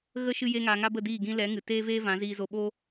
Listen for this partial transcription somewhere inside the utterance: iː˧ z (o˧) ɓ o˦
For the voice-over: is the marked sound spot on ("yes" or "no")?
yes